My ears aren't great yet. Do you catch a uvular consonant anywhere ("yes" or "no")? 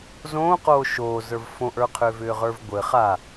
yes